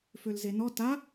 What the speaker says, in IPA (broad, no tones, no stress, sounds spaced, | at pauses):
f ø l z e n ɔ t a